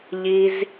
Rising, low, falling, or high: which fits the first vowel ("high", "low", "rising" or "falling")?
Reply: high